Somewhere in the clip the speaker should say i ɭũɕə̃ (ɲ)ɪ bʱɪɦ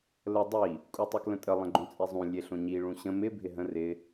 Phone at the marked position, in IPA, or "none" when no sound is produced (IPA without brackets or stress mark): m